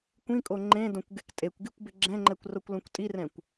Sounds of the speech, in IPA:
kʷĩkʼo ŋ͡ǃẽdõkʷɡek tʼekʷɡikʷbɪ ɡ͡ǁɛ̃ŋ͡ǃɛkʷrokʷlõkʷ tʼirɛ̃kʷ

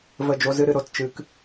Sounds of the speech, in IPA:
və˦˨d͡ʒo˦zɨ˦ɾɨ˧ ɾo˧tt͡ʃɨ˧k

